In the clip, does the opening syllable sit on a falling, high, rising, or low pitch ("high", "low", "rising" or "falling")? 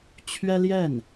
high